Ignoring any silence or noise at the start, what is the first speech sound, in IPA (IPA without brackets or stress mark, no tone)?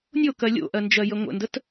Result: nʲ